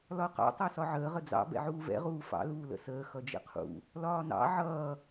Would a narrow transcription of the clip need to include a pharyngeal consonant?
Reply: yes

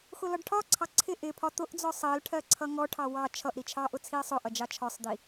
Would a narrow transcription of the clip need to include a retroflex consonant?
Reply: yes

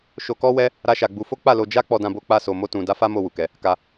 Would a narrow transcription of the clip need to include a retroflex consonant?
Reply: no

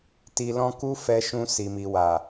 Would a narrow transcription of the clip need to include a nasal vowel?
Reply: yes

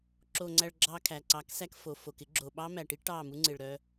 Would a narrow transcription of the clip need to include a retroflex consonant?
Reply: yes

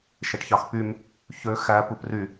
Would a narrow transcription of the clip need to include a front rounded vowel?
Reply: yes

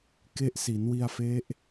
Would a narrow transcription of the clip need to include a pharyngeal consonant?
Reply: no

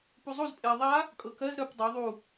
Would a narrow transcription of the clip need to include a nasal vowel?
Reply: no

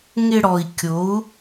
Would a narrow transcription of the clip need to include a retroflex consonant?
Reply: yes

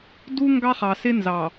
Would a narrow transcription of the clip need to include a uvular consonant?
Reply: yes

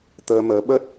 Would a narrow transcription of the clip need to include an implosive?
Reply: yes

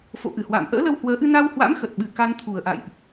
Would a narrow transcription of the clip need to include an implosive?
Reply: yes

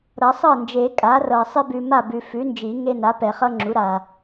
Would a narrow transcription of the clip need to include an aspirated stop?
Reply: no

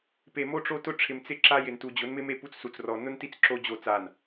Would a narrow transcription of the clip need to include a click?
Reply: yes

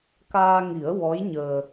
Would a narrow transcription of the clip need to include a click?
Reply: no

